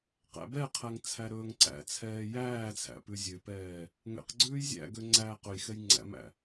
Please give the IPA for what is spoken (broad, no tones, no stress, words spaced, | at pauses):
qæ̰bɛqʰæŋ t͡sʰæɾɵːŋǀæ̰t͡sʰɛː jæːt͡sʰæ̰ pʉzʲøpɛː | ŋɛ̰qɡ͡ǀʉːj zʲæ̰ɡø ŋ͡ǀæːqɵjxɛj ŋ͡ǀæ̰mæ̰